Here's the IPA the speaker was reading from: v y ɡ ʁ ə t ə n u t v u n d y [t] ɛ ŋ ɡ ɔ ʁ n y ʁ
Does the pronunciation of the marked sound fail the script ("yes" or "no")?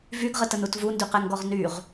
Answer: yes